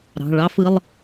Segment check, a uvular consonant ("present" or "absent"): absent